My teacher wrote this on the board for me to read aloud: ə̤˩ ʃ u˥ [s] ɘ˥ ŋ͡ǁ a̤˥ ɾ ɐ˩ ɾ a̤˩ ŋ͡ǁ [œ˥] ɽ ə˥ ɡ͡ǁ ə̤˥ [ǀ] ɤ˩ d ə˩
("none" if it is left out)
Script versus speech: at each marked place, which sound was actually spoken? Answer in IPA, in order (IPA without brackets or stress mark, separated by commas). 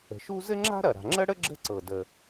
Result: z, ə˥, ǀ